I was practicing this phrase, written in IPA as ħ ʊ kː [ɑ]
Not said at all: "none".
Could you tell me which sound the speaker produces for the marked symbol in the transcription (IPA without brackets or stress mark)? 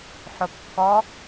ɔ